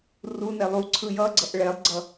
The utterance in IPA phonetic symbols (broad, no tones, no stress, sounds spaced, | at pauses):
r u n ɛ lˠ u ǀʰ ɯ j ʌ ɡ͡ǀ ʌ ʔ ɭ ɛ lˠ ɡ͡ǀ ʌ